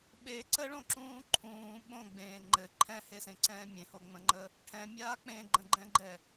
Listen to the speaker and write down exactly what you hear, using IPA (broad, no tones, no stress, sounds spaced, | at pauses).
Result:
ɓ e ǀ ə ɭ õ ǁ ũː ǃʰ ũː ɓ õ ɡ͡b ẽː ŋ͡ǃ ɘ ǃʰ ɛ̃ h e s ẽ ǀ ɛ̃ː mʲ ẽ h o ŋ͡m ə̃ ŋ͡ǃ ə | ʈʰ ɛ̃ mʲ aː k͡p ẽ ɡ͡ǃ ə̃ ɡ͡ǃ ɛ̃ ɡ͡ǃ ɛ